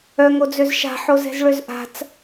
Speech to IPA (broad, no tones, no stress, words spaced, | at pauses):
œŋod͡zøz ʃa̤ħozɛ̤zɭøz ʔa̤t͡s